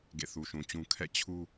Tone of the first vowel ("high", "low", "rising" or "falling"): falling